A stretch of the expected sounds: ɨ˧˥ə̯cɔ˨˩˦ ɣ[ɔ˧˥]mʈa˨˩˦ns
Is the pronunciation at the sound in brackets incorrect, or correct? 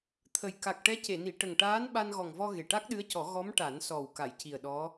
correct